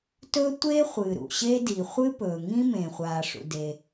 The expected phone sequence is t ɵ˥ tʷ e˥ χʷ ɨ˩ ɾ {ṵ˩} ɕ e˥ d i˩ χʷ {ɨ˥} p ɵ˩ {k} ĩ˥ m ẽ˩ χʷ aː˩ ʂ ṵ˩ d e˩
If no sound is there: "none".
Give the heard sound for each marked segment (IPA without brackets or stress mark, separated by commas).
ṵ˩, ɨ˥, ŋ